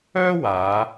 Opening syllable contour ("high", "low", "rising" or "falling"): high